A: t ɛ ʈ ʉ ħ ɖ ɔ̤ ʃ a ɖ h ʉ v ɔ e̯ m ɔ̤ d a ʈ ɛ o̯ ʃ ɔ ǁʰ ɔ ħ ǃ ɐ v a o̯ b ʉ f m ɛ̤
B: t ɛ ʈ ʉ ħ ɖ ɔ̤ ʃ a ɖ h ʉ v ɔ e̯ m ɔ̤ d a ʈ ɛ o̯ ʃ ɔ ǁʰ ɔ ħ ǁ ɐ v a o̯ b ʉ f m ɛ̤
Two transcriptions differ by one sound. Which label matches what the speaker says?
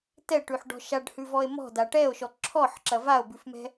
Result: B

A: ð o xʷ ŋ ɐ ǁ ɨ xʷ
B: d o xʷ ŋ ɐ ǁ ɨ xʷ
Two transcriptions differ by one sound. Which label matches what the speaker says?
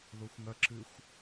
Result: A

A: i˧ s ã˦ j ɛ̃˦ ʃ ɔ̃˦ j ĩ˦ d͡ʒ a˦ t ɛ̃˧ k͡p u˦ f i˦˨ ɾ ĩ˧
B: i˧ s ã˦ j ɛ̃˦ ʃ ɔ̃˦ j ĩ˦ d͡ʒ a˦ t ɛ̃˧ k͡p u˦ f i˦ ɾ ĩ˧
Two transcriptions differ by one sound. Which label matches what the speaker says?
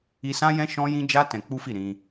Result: A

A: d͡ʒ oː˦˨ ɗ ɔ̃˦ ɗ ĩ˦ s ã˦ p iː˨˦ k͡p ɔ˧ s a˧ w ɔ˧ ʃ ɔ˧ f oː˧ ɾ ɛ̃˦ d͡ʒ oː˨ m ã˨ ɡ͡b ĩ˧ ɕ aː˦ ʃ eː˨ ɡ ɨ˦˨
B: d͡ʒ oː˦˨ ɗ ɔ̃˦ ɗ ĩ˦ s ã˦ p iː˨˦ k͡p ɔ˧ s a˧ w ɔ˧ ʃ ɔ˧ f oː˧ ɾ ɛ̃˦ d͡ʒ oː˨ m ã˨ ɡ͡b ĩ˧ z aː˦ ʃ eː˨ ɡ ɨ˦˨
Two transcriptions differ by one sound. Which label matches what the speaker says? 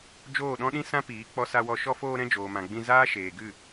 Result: B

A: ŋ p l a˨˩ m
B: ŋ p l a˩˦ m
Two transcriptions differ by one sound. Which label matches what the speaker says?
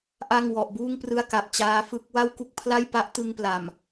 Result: A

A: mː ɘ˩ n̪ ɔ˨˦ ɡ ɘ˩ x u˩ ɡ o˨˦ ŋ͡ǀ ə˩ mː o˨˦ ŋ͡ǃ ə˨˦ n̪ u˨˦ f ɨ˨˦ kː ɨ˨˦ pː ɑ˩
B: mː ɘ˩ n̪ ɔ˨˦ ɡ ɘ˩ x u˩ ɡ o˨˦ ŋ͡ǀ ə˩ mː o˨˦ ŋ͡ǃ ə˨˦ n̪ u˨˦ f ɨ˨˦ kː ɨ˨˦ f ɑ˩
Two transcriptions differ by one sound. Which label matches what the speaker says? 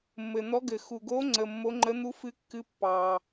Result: A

